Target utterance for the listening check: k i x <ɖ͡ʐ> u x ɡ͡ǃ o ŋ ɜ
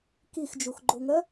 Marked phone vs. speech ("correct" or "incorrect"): incorrect